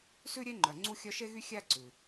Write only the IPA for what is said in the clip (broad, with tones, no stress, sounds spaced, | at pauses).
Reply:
s ʉ˥ ɾʲ e˦ ŋ͡ǃ œ˨ ŋ͡ǀ u˦ xʲ œ˦ ʃ e˥ ɣ y˥ xʲ æ˦ ǀ ʉ˩